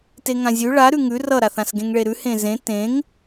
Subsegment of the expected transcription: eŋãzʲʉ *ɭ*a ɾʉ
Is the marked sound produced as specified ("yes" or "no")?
yes